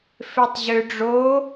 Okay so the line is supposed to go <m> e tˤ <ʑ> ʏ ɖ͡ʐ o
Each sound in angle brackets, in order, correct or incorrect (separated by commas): incorrect, correct